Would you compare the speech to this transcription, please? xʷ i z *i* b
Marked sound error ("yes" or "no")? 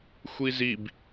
no